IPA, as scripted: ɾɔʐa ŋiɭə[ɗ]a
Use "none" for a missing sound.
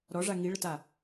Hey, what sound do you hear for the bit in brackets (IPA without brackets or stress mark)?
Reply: t